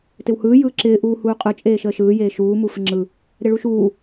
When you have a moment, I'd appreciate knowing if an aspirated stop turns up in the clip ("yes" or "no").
no